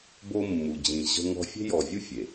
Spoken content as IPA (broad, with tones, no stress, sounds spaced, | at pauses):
b o˦ mː u˨ d͡ʑ ĩ˨ ʑ ə̤˦ ŋ ɔ̤˦ fʲ e̤˦ j ɔ˨ vʲ u˦ fʲ e˨